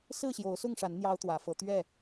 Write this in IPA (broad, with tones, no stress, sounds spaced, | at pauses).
s ɹ̩˥˨ ɕ j o˨˦ ʊ̯ s ʊ˥˨ ŋ ʂ a˨˦ n n̪ j ɑ˦ ʊ̯ t̪ w ä˨˦ f ɤ˨˦ t̪ ɥ ɛ˥˨